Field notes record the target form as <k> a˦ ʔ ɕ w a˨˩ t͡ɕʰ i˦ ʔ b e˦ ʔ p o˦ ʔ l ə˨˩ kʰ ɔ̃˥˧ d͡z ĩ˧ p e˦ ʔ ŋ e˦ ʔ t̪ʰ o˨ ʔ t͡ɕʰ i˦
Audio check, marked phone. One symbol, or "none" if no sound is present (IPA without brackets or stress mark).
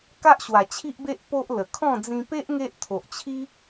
k